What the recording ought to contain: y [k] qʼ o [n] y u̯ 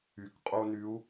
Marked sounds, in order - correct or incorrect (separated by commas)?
correct, correct